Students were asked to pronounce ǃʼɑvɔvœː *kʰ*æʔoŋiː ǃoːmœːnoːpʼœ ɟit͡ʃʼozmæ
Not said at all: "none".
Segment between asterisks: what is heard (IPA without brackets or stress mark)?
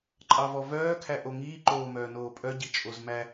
kʰ